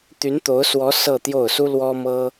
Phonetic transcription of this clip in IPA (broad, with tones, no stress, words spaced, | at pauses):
t̪y˧˥nt̪o˧˥ʊ̯swɔ˧˥ sɤ˥˧t̪jo˥˩ʊ̯ su˥lwɔ˥mɤ˥